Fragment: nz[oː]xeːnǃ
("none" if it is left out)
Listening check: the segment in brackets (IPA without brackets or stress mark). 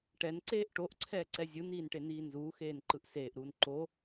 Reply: uː